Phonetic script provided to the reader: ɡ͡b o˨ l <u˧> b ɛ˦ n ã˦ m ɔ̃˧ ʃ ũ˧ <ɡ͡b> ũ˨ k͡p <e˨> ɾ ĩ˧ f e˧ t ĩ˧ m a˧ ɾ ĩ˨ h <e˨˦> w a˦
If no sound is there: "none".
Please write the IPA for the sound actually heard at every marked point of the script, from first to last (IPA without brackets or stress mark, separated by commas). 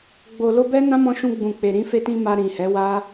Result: o˧, ɡ͡b, e˨, ɛ˨˦